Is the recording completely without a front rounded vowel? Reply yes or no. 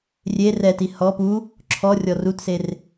yes